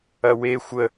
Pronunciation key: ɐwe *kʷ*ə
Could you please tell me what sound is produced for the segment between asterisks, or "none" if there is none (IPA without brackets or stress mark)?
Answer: xʷ